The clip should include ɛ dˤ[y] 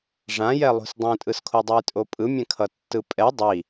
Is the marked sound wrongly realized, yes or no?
yes